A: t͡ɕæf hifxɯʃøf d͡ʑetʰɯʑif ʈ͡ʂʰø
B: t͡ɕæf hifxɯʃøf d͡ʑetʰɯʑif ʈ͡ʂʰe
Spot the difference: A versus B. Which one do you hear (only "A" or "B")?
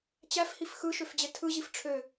A